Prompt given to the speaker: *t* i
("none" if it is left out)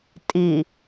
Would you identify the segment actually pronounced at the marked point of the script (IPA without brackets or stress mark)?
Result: tʼ